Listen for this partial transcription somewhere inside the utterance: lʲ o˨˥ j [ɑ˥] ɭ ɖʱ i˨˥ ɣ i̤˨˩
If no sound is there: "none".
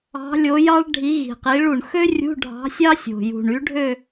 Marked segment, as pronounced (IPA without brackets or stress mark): ɑ˥